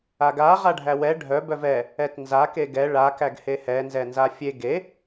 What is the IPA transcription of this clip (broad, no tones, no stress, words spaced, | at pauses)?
aɡa ʁaɖʱæwɛ ɖʱœ bœvɛ | ɛtnza keɡɛ ɭa kæɡhehɛ nzɛnzafʲe ɡe